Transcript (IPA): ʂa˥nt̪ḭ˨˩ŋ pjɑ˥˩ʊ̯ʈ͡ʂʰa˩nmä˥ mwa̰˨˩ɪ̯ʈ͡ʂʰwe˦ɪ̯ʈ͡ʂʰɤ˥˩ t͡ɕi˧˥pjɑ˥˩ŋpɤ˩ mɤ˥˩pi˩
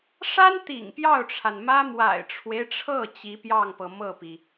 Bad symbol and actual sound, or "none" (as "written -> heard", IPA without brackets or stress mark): none